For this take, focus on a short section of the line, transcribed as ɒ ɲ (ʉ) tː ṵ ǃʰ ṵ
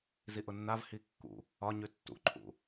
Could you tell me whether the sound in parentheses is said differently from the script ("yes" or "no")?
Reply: no